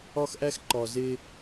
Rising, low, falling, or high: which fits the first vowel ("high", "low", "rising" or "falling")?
high